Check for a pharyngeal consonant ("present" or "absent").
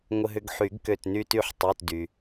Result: present